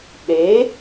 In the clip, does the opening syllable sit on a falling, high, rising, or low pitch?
rising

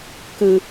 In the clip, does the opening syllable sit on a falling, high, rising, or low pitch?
low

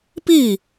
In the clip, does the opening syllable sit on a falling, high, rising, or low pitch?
falling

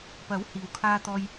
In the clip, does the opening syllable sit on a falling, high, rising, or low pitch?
rising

